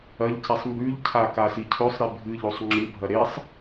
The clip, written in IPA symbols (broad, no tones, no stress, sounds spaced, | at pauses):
ɐ ʎ c e sˤ m b ʉ ʎ cʰ a k a s i cʰ ɵ sˤ ɾ i bʱ ɨ ʎ o sˤ ŋ͡ǁ ɨ bʱ ɐ ɾ e sˤ